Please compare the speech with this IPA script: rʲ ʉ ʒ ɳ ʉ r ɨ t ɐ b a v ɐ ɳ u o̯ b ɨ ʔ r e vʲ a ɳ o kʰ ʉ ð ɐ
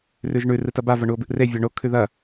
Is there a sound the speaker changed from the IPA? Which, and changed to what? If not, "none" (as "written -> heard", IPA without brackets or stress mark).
rʲ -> r